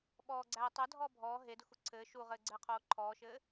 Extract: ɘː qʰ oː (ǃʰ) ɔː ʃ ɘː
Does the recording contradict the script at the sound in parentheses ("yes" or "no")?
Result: no